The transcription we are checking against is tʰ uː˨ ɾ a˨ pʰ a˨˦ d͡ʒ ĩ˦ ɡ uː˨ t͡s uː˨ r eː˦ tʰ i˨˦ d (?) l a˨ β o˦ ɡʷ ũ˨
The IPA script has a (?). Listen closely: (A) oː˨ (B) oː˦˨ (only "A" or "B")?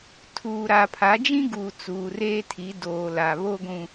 A